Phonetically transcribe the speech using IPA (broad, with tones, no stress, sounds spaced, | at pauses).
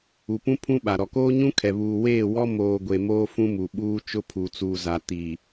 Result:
u˨ p ũ˦ pʰ ũ˦ ɓ a˨ ɾ ɔ˨ k oː˦ ɲ ũ˦ kʰ ɛ˨ β uː˨ w eː˦˨ w ɔ˦ m oː˨ ɡʷ e˨ m oː˦ f ũ˦ m u˨ ɓ uː˦ t͡ʃ ʊ˦ pʰ u˨ t͡s uː˨ z a˨ t i˨